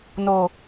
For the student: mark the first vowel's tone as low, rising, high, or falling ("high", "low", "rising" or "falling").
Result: low